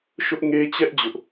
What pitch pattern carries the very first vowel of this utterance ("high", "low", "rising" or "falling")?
high